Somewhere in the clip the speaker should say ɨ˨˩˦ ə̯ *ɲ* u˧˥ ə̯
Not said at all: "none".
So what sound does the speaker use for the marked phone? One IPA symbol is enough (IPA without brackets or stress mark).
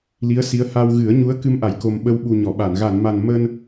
ɲ